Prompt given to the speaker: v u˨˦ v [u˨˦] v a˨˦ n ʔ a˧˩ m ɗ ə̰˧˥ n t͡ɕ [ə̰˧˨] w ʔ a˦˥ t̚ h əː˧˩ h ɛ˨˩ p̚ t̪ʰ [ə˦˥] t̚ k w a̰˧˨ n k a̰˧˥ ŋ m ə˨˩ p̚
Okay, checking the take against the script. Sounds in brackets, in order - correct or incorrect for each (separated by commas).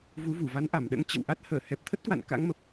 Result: incorrect, correct, correct